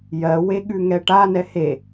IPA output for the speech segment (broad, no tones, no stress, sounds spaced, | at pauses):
j ɜ w e ɠ ʉ ŋ ɛ ʈ a n ɛ h e